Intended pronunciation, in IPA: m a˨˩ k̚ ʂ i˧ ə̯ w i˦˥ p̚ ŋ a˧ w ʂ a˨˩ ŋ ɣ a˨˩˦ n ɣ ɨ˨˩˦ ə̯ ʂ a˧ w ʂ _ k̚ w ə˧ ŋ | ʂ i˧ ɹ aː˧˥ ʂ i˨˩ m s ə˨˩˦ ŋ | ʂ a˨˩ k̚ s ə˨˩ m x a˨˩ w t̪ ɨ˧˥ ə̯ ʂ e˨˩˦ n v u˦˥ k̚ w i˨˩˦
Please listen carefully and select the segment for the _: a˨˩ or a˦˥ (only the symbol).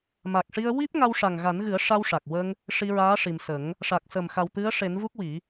a˨˩